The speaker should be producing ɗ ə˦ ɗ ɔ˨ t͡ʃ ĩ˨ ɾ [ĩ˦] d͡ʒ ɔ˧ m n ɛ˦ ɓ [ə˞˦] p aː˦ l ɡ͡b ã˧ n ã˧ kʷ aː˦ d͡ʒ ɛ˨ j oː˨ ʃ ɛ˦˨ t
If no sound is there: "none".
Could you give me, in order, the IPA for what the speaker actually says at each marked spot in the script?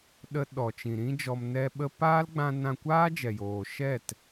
ĩ˦, ə˦

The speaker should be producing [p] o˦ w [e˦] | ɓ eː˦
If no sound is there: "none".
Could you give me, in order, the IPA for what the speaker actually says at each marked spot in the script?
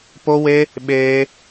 p, e˦

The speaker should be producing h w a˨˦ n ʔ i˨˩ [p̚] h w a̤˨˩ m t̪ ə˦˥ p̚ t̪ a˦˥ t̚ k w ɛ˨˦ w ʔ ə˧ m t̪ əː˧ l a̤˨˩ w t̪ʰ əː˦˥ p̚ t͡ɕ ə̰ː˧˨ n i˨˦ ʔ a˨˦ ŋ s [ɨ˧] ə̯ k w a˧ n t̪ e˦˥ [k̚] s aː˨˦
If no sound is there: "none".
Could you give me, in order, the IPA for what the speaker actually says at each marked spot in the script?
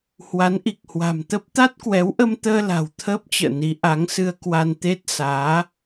k̚, ɨ˧, t̚

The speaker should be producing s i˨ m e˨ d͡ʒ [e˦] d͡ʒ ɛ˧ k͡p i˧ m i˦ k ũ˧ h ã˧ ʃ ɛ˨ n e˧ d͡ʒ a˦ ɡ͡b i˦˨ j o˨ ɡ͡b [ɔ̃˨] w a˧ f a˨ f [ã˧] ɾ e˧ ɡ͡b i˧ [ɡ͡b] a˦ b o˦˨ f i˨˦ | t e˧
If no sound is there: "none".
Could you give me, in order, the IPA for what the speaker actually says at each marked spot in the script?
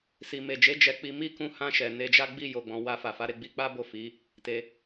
e˨˦, ɔ̃˨, a˧, k͡p

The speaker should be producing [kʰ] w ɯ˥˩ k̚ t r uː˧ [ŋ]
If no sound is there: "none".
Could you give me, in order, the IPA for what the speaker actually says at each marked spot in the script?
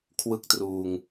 kʰ, ŋ

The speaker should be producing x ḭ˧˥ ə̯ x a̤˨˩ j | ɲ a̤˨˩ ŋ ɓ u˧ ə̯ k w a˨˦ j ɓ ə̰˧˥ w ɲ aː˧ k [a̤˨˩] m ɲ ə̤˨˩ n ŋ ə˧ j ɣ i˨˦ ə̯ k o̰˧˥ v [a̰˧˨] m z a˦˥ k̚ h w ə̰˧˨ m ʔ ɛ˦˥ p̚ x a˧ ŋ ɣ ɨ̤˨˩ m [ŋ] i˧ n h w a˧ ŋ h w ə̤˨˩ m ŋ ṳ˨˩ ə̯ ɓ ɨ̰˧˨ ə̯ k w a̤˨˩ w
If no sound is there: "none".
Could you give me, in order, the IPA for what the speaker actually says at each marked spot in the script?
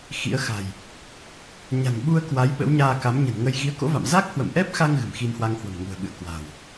a˨˦, a̰˧˨, x

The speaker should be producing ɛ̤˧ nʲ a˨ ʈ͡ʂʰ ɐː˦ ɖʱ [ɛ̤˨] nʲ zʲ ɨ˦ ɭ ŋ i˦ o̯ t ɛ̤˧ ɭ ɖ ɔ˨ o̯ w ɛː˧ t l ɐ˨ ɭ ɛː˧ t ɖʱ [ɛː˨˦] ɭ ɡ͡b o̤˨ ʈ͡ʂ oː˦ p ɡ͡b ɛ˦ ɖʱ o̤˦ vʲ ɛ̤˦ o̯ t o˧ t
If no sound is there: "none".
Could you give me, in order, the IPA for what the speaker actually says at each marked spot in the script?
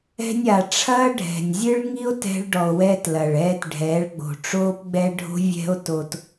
ɛ̤˨, ɛː˨˦

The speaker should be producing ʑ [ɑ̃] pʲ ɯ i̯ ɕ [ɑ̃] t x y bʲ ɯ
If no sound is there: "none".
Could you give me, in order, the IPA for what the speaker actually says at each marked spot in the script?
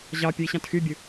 ɑ, ɑ̃

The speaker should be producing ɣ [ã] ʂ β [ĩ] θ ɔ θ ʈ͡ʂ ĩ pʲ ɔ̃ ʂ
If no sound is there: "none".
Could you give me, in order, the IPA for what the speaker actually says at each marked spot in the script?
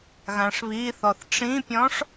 ã, i

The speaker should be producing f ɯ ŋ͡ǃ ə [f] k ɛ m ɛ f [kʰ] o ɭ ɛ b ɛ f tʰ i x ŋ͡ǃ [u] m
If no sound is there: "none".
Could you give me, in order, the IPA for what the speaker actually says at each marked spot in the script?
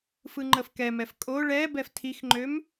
f, kʼ, ø

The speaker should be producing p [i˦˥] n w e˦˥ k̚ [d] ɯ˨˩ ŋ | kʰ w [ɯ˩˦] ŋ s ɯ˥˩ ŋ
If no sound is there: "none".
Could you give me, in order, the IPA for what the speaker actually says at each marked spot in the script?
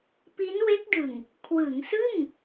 i˦˥, d, ɯ˩˦

